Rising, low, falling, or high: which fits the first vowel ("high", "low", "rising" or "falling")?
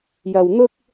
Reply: low